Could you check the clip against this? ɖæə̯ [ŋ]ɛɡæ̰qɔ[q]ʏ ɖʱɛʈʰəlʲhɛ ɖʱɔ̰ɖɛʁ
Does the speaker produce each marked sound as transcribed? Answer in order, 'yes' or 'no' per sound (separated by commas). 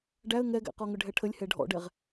yes, no